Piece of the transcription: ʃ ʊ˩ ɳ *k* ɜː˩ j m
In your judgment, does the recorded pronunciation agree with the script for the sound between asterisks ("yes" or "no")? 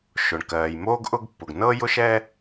yes